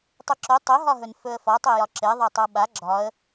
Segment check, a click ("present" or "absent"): present